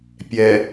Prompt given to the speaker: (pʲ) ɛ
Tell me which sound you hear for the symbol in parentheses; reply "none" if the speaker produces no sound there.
pʲ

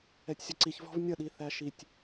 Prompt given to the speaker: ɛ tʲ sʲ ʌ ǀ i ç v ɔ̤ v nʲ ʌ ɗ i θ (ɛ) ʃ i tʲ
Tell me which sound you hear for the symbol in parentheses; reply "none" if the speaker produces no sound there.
æ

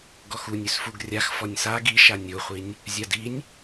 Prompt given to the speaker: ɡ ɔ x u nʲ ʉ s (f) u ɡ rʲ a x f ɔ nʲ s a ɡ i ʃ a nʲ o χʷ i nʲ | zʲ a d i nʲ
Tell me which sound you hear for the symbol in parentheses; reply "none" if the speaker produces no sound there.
f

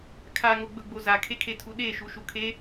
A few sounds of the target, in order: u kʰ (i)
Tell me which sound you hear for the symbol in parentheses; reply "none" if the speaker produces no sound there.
e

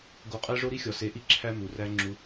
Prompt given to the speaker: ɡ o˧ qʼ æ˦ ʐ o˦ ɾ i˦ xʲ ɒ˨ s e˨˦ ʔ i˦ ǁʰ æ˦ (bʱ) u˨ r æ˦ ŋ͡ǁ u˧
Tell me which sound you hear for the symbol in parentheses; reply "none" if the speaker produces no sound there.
m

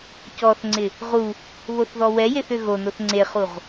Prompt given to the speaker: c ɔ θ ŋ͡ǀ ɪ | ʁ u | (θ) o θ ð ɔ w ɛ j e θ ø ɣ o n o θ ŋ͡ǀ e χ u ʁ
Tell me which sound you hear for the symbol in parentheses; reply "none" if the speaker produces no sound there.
β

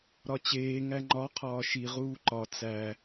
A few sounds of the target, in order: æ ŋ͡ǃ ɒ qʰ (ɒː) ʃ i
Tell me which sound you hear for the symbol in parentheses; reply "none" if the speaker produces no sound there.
ɒː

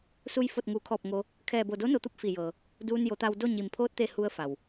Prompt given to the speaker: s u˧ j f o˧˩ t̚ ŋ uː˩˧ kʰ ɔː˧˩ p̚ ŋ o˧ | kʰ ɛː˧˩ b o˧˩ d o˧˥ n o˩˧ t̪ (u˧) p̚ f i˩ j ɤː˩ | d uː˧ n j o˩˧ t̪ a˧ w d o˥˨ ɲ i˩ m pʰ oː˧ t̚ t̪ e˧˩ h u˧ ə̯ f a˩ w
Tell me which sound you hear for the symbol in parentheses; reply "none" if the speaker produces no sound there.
u˧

